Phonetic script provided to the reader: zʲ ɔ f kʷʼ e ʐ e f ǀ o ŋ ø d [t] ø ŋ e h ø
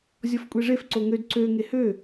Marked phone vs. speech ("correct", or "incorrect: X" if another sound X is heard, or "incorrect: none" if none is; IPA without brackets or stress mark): incorrect: ǀ